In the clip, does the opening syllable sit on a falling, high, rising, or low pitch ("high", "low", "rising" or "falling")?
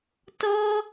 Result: high